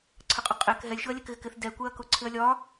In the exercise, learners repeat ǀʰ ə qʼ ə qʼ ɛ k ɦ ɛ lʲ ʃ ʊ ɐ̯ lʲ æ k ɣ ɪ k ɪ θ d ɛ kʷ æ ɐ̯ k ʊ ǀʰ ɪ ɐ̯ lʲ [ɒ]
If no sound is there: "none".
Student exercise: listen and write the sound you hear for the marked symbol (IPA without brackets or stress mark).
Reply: ɒ